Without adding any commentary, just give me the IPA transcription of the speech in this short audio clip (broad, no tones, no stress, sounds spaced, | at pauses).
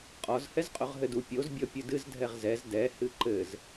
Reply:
qʼ ɔ z h ɛ z qʼ o ʁ ɦ ɘ d u pʲ o z bʲ ɔ pʲ ɨ d ɨ z dʱ ɛ ʁ z ɛ z d ɛ h ɨ ǃ ɘ z